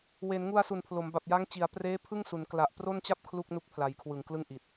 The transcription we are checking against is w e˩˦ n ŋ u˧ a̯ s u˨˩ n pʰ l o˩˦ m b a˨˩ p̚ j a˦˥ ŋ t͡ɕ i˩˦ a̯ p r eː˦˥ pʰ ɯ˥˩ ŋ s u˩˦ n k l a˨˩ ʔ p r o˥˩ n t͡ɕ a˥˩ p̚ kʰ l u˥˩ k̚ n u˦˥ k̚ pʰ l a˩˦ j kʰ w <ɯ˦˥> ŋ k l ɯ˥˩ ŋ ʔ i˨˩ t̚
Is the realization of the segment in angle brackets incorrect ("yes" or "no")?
yes